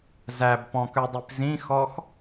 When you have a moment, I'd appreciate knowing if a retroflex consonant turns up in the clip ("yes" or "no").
no